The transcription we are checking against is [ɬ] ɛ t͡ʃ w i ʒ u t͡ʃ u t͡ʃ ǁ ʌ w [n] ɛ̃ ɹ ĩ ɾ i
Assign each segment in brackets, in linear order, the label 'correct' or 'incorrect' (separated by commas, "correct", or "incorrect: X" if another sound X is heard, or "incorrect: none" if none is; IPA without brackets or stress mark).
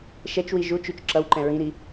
incorrect: ʃ, incorrect: ǃ